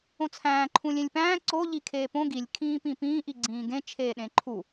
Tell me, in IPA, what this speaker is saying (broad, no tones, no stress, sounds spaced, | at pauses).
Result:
õ t͡sʰ æ̃ː ǃʰ ũ lʲ ẽ lʲ p æ̃ː ǀ o ʎ i kʰ eː p õ ɡ i lʲ kʰ ĩː p ĩ p ĩː ʔ i ɡ͡ǀ ĩː ɡ ẽ t͡ʃʰ eː ɗ ẽ ǃʰ u